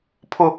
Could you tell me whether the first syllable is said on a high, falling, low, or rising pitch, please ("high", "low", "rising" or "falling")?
low